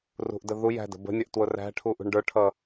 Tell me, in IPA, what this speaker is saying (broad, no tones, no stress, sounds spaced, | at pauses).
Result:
r ṳ ʔ d ə ð u j æ̤ d ə̤ b ə̤ nʲ ʌ ʔ t w ʊ r æ̤ ʈʰ u ʔ ṳ ɳ ɖ ə˞ ʈʰ ʌ